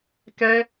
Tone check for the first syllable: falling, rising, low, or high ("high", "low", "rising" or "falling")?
high